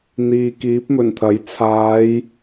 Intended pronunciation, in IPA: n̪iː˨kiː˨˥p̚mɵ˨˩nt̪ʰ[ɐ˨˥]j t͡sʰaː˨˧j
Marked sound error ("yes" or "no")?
no